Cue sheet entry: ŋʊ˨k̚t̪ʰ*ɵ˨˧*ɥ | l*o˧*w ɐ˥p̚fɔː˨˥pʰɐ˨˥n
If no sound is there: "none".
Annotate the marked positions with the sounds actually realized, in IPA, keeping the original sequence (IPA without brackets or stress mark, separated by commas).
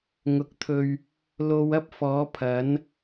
ɵ˨, o˧